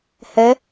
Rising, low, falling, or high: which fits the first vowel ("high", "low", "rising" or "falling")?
rising